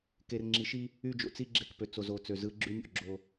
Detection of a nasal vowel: absent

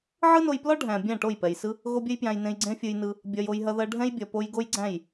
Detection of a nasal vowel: present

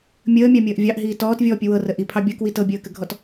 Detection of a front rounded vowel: absent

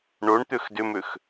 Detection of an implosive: absent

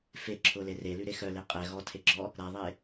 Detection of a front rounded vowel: present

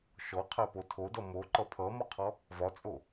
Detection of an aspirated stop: present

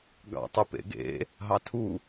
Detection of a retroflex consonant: absent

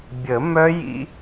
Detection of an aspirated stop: absent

